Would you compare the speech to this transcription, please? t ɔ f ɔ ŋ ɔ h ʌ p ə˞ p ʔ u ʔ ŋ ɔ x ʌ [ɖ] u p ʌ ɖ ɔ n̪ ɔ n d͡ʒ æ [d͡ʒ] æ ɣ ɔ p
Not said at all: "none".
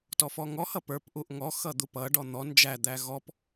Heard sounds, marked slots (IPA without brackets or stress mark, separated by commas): d̪, d̪